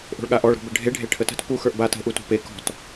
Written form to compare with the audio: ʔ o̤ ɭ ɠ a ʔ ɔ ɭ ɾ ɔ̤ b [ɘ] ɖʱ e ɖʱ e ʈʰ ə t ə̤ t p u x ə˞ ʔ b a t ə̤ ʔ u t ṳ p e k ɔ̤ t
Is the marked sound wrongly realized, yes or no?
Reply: no